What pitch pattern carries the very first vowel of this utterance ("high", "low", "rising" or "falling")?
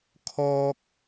high